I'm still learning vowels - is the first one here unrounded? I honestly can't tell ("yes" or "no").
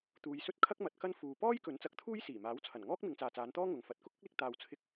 no